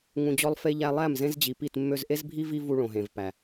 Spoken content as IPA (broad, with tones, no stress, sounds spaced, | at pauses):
ŋ ũ˨ d͡ʑ ɔ˧ lˠ f e˧ ʎ æ˧ lˠ æ˦˨ m z ẽ˦ z d͡ʑ i˨ p i˦˨ t mː ø˧ z ʔ e˦ z bʱ i˦ v i˦ v u˧ ɭ õ˨ ɦ ẽ˨ v p æ˨